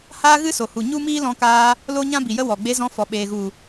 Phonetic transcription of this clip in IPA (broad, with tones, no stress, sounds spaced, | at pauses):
h aː˦ ɣ ɨ˦ s o˨ h u˨ ɲ u˦ m iː˦ l ɔ̃˧ k aː˧ | l o˦ ɲ ã˦ b i˨ j ə˦ w ɔ˨ ɡ͡b e˧ z ɔ̃˧ f ɔ˨ ɓ eː˨ ɣ u˨